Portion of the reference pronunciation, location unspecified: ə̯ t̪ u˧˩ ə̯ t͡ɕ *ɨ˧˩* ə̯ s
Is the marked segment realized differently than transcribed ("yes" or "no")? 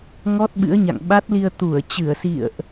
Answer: no